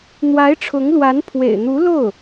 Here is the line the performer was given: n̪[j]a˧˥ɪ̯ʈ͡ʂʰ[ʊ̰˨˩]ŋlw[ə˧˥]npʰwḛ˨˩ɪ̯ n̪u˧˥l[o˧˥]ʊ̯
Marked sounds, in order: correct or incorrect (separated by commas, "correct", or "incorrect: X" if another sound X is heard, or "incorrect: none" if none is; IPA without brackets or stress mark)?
incorrect: w, incorrect: ʊ˧˥, incorrect: a˧˥, incorrect: o˥˩